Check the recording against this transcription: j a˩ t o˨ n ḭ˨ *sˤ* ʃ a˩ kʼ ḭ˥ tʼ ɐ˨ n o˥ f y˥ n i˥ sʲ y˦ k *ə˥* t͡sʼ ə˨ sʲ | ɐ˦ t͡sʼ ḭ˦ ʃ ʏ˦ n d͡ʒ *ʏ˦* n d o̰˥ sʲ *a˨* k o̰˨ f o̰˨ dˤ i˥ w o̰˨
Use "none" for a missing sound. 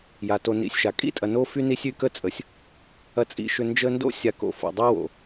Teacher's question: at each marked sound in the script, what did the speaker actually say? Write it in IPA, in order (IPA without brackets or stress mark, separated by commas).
sʲ, ə˥, ə˦, a˨